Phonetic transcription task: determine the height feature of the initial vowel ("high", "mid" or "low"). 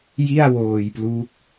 high